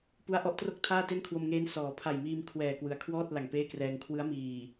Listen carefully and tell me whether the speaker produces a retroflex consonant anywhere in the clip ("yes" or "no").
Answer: no